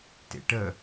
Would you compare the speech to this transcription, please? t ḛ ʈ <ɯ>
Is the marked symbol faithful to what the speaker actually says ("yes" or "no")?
no